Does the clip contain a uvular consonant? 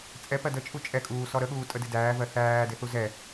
no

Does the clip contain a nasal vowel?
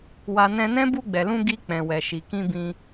yes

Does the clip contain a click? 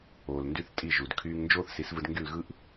no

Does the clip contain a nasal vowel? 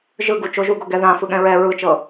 yes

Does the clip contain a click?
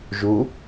no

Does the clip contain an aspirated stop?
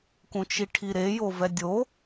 yes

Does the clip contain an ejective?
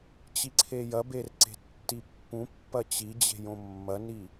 no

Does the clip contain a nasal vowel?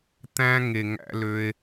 yes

